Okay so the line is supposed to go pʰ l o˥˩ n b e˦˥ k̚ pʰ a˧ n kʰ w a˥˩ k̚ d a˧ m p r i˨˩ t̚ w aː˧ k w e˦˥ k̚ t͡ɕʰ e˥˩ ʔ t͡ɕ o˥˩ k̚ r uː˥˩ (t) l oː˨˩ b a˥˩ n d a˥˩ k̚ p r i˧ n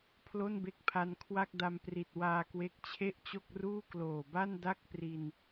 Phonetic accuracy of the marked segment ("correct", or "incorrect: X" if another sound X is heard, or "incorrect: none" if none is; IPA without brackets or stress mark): incorrect: k